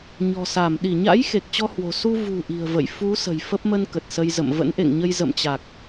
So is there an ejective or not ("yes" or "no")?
no